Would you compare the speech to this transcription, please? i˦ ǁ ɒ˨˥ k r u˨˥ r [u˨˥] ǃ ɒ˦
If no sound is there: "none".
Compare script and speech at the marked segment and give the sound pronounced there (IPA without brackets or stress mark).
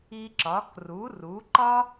u˨˥